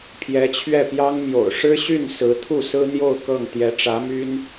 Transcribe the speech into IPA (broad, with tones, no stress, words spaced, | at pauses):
pʰjɛ˧˥t͡ɕʰɥɛ˥˩pjɑ˥ŋmjo̰˨˩ʊ̯ ʂɻ̩˥ɕy˥˩n sɹ̩˧˥t̪ʰu˥˩sɹ̩˥n̪jo˥˧ʊ̯ kɤ˥˩ŋ t̪jɛ˧˥ʈ͡ʂä˧˥my˥n